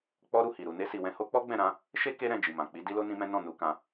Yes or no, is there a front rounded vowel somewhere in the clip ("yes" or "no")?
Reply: no